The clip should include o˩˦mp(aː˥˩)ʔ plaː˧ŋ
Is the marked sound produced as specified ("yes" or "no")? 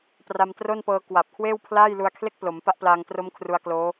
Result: no